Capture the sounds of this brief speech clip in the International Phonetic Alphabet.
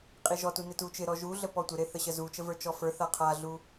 qʼiʒɔtu nɪtut͡ʃɪɾɔ ʒuɮə pɔtʷɪɾe θəɕəzut͡ʃə və˞t͡ʃɔfə˞θa qʰaɮu

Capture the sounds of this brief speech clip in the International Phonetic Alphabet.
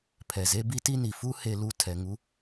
pʰɛ˨ze˦bi˦ ti˦ni˨ fu˦he˧lu˧ tʰɛ˧ŋu˦

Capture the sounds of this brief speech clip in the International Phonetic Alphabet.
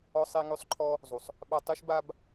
ɔ˥sˤe˥ŋø˥sˤǃʰɔ˥ | zˤu˩sˤ | ɓa˥ tˤy˥ʃ ba˥b

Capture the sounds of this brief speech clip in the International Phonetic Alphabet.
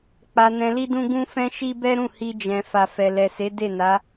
k͡pa˧ nɛ̃˧li˦dũ˦ ɡũ˦fɛ̃˦ ʃi˦bɛ˦ɾũ˦˨hi˧ d͡ʒɛ̃˨ fa˨fɛ˨lɛ˨se˨˦ de˦˨na˨˦

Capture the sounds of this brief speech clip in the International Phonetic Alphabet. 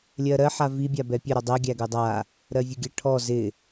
lʲɜɾɜ ħavi bʲabɛpʲə ɾɔdˤɜ ɡʲæɡɜdˤa | ɾɜvʲəɡʲə ʈʰɔ zɪ

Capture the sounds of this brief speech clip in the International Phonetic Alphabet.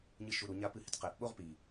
ɲɨʃuɾuɲa pɨhɪtqɛʔɓoʁ pi

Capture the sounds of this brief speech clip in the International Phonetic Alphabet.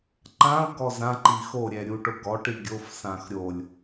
ǃãʊ̯ɡɔ zãǃi xoɾʲɛ ɾʲuʈʊɡɔʈi ɡʲofsãx ɾʲolʲ

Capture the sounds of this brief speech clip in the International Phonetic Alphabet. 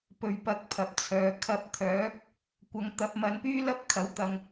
pɵ˨˩ɥ pɐ˨k̚ pʰɐ˨p̚t͡sʰœː˨˧ kʰɐ˧p̚t̪ʰœː˨˥k̚ | kʷɐ˨˧ŋt̪ɐ˨˥p̚ mɐ˨˧npyː˥lɐ˥p̚ kʰɐ˨˥wt̪ɐ˧ŋ

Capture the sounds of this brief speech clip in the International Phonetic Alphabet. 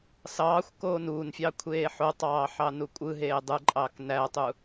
sɑːxʷ koːnuːnfʲɑ kʷʰeːħotˤɑː ħɑnukʷʼɯɦeː dˤɯǃʼɑːk nætˤu

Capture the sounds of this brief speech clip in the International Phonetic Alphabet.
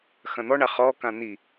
xɐ̃n̪ɔɳa χɔkã n̪i

